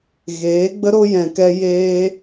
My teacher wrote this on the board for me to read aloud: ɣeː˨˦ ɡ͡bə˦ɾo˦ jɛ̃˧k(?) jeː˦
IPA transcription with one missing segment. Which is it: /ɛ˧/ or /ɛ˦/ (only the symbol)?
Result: ɛ˦